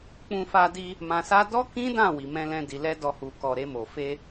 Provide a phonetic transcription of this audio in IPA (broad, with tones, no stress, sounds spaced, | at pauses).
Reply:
k͡p ũ˧ f a˧ d i˧ | m ã˧ s a˦ d ɔ˦ k ĩ˦ d ã˦˨ w i˧ m ɛ̃˦ l ɛ̃˦ d i˧ l ɛ˦ d ɔ˧ h u˨ k ɔ˧ ɾ e˧ m o˨ f e˧